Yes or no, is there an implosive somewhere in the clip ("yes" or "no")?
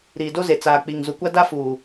no